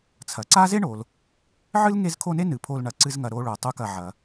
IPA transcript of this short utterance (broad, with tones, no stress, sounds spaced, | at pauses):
t͡sʰ ɐ˩ ǀ a˥ z e˥ ɳ o˩ l | ʕ ɨ˥ l ŋ e˦ z kʰ o˦ n e˥ n ɨ˩ pʰ o˨ l ɳ ɐ˩ ǀ ɨ˨ z ŋ ɐ˩ ɾ o˨ ɭ o˩ tˤ u˨ k ɐ˩ ʕ ɐ˩